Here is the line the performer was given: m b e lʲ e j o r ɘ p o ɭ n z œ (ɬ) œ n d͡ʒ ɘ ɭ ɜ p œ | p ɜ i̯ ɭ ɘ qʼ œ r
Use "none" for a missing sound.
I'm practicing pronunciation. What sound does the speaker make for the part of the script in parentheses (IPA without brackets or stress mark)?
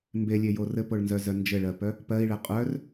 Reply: z